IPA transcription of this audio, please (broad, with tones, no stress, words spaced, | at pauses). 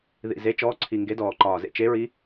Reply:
ðḭ˨˩ze˧˥t͡ʃɔː˧˥ǀʰi˨˩ ŋɡe˧˥dɔː˨˩ǃɒː˨˩zḛ˥ t͡ʃe˧˥ɹi˧˥